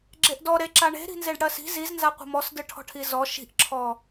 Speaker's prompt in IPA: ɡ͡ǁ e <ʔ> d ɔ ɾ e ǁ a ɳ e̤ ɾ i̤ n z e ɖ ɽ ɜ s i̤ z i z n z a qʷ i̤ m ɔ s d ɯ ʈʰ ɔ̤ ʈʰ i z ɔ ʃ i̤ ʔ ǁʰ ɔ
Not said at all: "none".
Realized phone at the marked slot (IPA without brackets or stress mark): ʔ